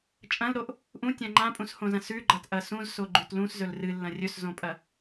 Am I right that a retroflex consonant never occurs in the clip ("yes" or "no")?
yes